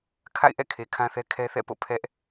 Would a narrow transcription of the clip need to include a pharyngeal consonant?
no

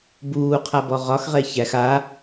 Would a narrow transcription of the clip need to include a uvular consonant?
yes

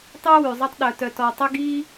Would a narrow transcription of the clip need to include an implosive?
yes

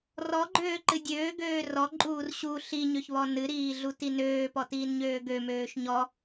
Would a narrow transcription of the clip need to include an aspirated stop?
no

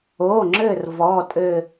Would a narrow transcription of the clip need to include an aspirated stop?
no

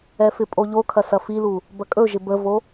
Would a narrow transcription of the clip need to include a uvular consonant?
no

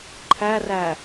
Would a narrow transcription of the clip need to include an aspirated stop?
yes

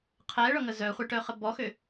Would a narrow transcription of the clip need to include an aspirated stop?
yes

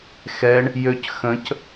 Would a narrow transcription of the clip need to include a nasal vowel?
yes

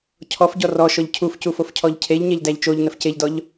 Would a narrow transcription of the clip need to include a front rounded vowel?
no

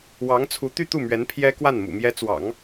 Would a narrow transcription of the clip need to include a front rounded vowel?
yes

